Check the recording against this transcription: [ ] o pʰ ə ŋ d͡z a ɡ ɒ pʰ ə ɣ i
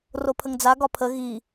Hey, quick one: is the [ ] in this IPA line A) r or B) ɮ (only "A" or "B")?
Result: A